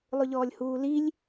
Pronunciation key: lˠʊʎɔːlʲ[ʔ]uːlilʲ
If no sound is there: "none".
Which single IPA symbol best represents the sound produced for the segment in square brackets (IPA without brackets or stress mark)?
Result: h